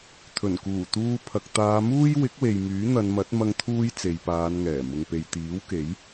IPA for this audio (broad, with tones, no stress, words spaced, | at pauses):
t̪ʰɵ˨˩n kuː˨˩ t̪uː˧pʰɐ˨k̚ t̪aː˨˧muː˥j wɪ˨˥k̚we˨j myː˨˥n̪ɐ˨˧nmɐ˨˥t̚ mɐ˧ŋt̪ʰuː˧j t͡se˨jpaː˨˧nŋɛː˨˩ mʊ˨ŋpe˨jt̪iː˨˥wke˨˥j